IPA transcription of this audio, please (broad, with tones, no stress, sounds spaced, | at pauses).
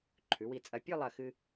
ǃʰ ʉ˩˧ w i˧˩ t͡sʼ ɐ˧˩ pʲ o˥˧ lˠ ɐ˧˩ x ɨ˧